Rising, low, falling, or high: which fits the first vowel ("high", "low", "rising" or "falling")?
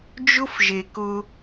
high